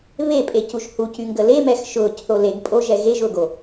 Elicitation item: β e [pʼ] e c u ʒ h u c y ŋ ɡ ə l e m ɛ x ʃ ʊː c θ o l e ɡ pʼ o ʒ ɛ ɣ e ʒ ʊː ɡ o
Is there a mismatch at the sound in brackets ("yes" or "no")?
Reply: no